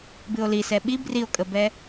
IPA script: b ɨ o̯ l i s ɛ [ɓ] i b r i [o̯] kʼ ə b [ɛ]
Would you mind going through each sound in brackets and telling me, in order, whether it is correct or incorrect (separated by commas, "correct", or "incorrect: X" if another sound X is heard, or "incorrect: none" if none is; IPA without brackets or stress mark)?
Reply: correct, correct, correct